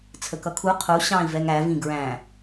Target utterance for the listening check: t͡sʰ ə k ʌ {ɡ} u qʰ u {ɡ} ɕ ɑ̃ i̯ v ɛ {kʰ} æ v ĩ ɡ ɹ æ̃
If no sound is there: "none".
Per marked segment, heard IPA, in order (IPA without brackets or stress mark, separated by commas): kʰ, none, ŋ